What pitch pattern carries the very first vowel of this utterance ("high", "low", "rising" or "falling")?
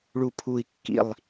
falling